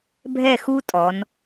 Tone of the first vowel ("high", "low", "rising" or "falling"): falling